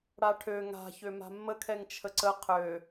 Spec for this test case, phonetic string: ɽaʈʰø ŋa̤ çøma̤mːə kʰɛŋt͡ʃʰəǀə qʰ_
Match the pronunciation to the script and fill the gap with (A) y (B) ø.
B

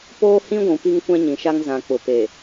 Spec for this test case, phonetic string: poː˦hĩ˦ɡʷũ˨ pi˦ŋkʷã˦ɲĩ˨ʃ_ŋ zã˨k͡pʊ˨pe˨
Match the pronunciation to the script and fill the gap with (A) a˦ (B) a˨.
A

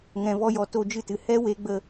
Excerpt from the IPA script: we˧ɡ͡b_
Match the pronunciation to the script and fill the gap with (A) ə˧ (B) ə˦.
A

